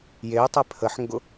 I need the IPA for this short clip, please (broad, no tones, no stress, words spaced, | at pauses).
jejtˤe pʰəħŋɡʊ